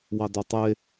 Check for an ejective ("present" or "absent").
absent